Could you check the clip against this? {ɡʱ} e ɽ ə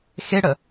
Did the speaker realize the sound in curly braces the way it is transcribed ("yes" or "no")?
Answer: no